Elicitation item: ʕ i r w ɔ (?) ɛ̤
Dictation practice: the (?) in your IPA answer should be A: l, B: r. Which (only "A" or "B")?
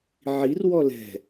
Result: A